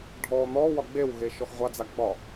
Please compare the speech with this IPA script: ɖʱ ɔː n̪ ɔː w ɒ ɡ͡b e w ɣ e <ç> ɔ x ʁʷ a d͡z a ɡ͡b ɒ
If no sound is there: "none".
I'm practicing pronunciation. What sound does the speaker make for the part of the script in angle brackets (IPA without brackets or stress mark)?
ʃ